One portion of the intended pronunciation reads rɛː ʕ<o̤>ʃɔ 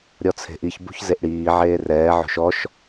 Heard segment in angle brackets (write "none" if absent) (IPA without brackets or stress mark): o̤